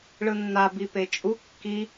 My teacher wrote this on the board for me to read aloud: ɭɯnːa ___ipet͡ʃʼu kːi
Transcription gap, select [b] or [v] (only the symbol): b